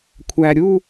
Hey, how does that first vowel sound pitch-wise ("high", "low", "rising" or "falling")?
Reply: low